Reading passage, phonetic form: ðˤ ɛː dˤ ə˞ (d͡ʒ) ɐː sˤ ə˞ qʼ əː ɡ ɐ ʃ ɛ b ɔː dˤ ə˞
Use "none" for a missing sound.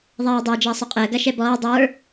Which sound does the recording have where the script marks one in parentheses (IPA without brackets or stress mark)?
d͡ʒ